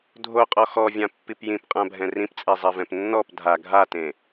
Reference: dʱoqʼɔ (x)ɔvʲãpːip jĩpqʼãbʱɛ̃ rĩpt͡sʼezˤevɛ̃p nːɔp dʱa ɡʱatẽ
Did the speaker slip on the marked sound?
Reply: no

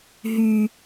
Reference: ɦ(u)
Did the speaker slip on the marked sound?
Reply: yes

